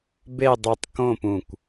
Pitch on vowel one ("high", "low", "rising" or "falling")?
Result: falling